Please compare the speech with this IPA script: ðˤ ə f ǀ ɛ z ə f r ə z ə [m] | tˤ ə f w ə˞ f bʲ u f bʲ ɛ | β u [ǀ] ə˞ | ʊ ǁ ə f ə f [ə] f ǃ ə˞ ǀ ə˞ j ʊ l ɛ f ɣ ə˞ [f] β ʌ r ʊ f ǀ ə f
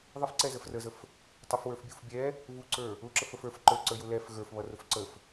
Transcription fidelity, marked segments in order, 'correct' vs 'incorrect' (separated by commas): incorrect, correct, incorrect, correct